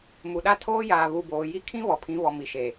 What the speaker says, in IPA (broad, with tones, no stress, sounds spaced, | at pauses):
m u˨ ɗ a˦ tʰ oː˦ j aː˨ β u˨ b oː˨ j i˦ kʰ ĩ˦ β ɔ˨ pʰ ĩ˨˦ β ɔ˨ m i˨ ʃ eː˨